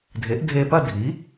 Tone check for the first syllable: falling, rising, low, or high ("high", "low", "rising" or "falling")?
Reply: rising